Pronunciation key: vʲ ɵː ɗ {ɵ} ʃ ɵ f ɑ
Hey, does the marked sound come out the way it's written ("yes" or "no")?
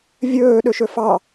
yes